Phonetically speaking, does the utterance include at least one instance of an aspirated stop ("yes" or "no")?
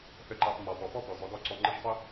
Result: no